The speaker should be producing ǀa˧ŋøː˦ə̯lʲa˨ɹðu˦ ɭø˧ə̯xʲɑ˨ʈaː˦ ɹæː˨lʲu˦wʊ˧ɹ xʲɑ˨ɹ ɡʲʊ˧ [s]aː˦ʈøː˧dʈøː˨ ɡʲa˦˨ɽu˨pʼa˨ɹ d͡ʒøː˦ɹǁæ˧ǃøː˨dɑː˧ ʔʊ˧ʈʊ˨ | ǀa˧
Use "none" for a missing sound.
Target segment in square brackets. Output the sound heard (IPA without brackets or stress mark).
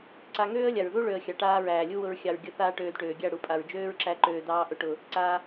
θ